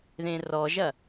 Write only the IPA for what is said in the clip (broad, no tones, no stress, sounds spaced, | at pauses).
ð ẽ r ɔ ʒ ɐ